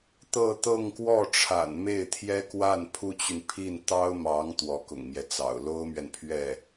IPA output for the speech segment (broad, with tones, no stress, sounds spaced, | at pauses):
t̪ ɤ˥˧ t̪ ɤ˥˧ ŋ k w ɔ˥˩ ʈ͡ʂʰ a̰˨˩ n m e˥˩ ɪ̯ t̪ʰ j ɛ˥ k w a˥˩ n pʰ u˥ t͡ɕ y˨ n pʰ i˥˩ n t̪ ɑ˥ ʊ̯ m ɑ˧˥ ŋ t̪ w ɔ˧˥ k ʊ̰˨˩ ŋ m j ɛ˦ t͡s ɑ̰˨˩ ʊ̯ l o˥ ʊ̯ m ɥ ɛ˨ n pʰ ɥ ɛ˥˩